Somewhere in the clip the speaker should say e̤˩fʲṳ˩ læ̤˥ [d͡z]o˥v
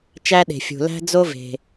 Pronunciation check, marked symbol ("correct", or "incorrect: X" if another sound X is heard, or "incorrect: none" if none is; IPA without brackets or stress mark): correct